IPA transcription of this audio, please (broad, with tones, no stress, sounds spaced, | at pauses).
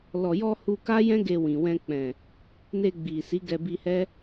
l ɔ˨ j ɔ˧ h u˧ k a˦ j ɛ̃˦ ɡ e˧ w ĩ˨ w ɛ̃˧ k͡p ɛ̃˨ | n e˧ ɡ͡b i˨ s i˨˦ ɡ ɛ˧ b i˧ h ɛ˦